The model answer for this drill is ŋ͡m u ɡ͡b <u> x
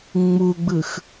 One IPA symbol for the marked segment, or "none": ɯ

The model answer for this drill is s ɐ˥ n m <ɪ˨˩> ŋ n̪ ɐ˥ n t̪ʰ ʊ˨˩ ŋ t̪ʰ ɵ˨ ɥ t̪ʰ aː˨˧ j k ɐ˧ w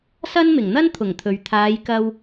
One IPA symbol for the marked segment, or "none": ɪ˨˩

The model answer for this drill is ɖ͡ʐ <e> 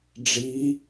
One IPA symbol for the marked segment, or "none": i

